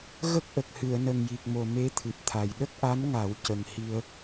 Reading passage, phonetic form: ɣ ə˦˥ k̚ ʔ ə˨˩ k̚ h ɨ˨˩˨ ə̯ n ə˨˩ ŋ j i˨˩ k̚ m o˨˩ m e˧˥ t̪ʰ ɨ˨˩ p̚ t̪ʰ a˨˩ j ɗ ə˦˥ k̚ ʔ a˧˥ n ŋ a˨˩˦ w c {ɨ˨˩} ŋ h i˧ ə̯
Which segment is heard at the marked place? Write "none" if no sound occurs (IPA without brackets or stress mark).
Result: ə˨˩